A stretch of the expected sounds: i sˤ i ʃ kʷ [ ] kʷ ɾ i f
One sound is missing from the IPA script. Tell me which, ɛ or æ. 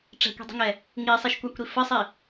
æ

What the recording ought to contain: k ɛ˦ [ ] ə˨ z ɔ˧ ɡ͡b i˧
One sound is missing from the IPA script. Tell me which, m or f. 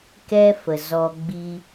f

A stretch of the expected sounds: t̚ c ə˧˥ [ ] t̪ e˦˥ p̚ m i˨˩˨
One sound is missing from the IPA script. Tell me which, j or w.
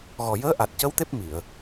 w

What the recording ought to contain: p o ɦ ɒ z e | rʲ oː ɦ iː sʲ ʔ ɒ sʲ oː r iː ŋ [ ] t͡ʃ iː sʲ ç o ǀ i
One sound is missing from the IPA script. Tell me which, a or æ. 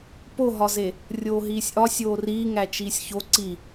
æ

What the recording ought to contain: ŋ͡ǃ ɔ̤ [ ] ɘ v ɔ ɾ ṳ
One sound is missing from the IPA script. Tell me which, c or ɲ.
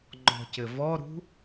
c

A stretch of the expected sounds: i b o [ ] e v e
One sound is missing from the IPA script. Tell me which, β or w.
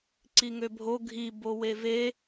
w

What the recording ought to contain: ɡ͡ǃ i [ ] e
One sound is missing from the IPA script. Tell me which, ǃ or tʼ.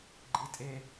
tʼ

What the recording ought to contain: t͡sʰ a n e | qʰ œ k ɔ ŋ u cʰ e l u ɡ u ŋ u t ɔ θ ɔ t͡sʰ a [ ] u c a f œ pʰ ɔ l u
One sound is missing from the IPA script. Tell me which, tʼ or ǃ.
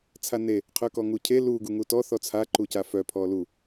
ǃ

